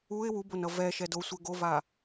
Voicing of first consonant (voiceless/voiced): voiced